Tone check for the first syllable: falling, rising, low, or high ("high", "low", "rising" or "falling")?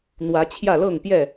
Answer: rising